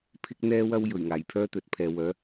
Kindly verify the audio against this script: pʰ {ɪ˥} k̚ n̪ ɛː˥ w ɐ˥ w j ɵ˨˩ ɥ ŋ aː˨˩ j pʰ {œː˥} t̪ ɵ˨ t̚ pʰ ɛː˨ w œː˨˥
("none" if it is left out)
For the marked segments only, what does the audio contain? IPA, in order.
ɪ˥, œː˥

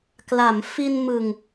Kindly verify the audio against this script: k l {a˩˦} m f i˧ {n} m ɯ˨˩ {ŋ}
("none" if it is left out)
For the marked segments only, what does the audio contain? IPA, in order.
a˩˦, n, ŋ

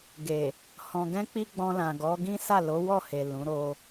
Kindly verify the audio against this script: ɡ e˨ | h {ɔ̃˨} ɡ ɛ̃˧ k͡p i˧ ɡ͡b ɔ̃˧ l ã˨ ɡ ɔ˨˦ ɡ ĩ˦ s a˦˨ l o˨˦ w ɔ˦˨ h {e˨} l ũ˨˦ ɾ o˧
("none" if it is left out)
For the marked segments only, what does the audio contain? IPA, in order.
ɔ̃˨, e˨

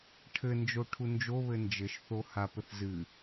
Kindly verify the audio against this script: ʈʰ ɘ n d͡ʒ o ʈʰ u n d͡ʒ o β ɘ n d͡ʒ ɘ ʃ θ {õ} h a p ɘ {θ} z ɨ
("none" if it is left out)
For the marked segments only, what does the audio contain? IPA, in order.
o, θ

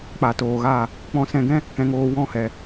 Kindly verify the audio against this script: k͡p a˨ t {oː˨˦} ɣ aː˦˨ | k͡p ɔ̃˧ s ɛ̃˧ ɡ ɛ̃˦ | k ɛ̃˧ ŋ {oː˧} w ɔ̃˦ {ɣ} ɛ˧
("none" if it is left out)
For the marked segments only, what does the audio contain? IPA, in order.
oː˨, oː˧, h

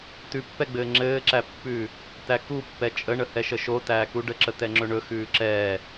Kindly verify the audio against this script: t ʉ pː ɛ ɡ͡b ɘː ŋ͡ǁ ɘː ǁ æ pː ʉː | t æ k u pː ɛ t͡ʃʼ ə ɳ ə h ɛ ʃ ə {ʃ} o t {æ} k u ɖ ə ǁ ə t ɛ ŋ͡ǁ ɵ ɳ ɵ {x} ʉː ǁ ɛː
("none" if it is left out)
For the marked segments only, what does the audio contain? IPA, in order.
ʃ, æː, x

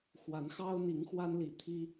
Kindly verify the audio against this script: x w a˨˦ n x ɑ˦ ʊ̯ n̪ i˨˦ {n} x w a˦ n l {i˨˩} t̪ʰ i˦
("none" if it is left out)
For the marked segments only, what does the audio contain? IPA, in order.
ŋ, i˨˩

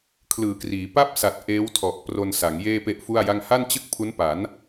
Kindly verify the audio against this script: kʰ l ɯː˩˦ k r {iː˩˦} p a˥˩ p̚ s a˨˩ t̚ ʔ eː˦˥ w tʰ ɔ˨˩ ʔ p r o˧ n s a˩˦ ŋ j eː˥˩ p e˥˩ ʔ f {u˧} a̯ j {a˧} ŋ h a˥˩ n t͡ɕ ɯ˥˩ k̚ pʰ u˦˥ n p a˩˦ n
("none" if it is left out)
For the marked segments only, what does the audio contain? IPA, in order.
iː˩˦, u˥˩, a˥˩

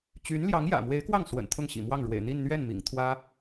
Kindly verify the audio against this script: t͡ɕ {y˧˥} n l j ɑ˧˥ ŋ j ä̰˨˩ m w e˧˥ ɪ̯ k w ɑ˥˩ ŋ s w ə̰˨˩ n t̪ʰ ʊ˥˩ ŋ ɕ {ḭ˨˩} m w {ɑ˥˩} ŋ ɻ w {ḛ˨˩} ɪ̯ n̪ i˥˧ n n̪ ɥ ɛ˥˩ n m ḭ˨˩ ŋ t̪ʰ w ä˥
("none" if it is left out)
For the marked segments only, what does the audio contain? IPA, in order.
y˧˥, ḭ˨˩, ɑ˥˩, ḛ˨˩

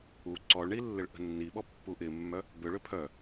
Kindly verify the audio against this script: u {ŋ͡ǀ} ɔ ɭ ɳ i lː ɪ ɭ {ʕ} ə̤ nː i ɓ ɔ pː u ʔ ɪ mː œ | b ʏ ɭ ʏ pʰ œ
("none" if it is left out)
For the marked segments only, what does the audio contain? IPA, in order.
ǀ, ʔ

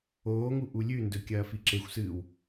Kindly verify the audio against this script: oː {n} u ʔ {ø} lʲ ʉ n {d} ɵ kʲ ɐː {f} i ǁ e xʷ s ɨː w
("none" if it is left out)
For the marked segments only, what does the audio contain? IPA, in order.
ŋ, u, d, f

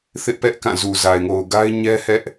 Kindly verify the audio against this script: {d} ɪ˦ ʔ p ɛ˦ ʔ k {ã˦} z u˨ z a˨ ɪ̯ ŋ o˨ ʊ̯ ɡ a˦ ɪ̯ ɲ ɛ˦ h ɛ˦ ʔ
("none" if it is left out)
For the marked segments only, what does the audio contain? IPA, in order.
θ, ã˦˨

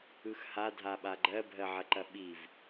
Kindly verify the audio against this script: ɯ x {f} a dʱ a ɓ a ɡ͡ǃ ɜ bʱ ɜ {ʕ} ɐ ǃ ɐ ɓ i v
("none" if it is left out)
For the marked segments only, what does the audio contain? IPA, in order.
h, ʕ

